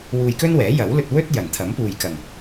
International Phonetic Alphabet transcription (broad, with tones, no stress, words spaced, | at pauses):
wuː˧jkɵ˥nwɛː˨˥ jɐ˨˥wlɵ˧t̚ wɵ˥t̚ jɐ˨˩nt̪ʰɐ˨˥mpuː˨jkɐ˨˩ŋ